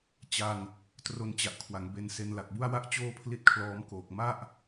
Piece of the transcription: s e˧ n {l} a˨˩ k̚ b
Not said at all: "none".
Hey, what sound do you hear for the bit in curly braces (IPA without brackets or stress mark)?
l